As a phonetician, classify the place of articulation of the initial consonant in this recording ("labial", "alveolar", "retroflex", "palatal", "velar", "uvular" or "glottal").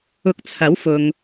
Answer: velar